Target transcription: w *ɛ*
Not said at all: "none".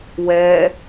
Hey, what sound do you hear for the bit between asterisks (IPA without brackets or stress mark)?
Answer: ɛ